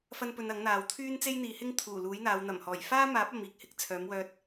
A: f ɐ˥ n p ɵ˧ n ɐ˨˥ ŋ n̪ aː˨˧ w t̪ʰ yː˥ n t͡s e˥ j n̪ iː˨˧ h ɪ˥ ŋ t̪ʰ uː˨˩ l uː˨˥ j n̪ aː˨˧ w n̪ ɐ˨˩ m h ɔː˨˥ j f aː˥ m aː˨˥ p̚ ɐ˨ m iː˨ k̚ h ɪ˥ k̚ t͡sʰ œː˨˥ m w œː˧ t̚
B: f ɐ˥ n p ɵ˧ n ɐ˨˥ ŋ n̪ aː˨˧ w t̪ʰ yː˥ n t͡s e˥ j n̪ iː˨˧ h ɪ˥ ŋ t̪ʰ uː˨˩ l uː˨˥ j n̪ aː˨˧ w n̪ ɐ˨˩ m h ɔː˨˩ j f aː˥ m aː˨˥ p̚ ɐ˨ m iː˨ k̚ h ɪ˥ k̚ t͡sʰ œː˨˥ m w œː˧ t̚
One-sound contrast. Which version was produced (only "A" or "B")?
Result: B